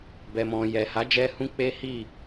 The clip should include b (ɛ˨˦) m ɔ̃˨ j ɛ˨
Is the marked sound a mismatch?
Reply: yes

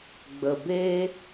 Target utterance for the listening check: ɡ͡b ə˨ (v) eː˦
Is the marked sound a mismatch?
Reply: yes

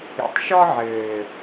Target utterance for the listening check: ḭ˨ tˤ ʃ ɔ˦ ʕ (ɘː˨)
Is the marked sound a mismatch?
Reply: no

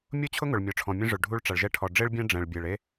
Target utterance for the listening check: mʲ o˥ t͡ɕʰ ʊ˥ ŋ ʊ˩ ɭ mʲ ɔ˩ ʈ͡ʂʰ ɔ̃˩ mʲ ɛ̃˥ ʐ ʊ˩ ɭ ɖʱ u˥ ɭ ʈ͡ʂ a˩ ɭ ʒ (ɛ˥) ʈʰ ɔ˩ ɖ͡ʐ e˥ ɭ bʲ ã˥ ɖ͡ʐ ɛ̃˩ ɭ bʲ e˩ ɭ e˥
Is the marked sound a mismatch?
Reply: no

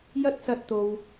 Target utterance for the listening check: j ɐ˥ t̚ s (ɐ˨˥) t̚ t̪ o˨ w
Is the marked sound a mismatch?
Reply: yes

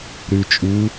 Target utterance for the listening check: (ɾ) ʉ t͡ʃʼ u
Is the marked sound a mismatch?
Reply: no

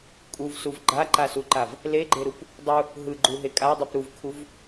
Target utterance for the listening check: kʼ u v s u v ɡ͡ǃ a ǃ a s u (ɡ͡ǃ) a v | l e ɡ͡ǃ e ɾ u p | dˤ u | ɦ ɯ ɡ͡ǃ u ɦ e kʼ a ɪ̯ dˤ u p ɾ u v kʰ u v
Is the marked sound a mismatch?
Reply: yes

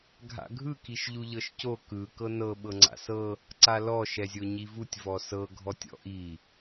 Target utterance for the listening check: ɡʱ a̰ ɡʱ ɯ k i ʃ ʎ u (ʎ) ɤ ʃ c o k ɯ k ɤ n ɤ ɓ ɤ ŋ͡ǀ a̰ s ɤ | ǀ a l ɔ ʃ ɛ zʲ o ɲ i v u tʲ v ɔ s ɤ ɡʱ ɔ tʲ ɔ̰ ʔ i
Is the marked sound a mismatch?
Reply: no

